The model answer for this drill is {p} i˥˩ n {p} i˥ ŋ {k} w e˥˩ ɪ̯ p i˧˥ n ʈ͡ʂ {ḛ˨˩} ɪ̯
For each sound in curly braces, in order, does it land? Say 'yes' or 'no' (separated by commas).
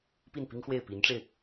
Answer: yes, yes, no, no